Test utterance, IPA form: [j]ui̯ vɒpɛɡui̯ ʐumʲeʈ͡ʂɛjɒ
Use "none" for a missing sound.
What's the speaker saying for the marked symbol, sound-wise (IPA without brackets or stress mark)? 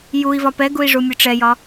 j